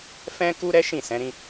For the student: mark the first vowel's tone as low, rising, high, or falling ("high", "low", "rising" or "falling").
high